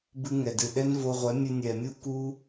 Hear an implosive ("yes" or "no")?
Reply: yes